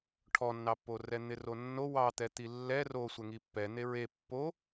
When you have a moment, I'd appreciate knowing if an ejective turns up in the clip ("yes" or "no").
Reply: no